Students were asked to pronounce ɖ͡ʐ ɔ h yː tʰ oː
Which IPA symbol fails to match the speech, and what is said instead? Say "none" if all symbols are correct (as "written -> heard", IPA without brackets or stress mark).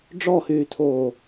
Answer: none